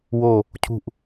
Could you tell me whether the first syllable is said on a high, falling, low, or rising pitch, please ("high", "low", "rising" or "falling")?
falling